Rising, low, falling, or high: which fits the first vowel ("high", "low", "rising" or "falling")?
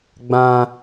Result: high